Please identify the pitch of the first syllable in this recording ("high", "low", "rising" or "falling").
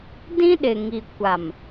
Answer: high